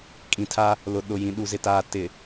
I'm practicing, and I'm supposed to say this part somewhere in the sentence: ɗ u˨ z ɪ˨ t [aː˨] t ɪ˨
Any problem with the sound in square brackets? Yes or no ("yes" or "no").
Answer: no